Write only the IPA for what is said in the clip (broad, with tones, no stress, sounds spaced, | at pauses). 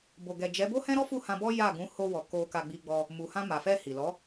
b o˨ ɡ ɛ˨ d͡ʒ ɛ˨˦ b o˦ h ɛ̃˦ ɾ ɔ˦ f u˦˨ h ã˧ b ɔ˦ j a˦˨ ɡ ũ˨˦ h o˧ w ɔ˨ k o˧ k a˧ ɡ͡b i˧ ɡ͡b ɔ˧ | m u˨ h ã˧ m a˨ f ɛ˧ h i˨ l ɔ˨˦